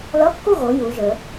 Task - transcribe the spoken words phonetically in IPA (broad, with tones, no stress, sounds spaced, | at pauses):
l ʌ˧˥˧ kː u˥˨ ɣ o˨˦ j u˨˦ ʒ ə˞˨˦